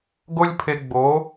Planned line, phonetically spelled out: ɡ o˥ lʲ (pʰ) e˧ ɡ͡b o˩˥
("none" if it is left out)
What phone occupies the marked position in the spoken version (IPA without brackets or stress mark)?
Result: pʰ